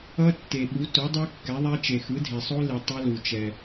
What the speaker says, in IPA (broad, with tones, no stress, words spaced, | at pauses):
ʌ˦˥tːe˩ ɓu˩˥ to˩˥ dˤu˦˥kːɛ˩˥ðˤɛ˦˥ t͡ʃe˩xɯ˩˥dʱe˩sˤo˦˥ li˩ tˤʌ˦˥lu˩ t͡ʃɛ˩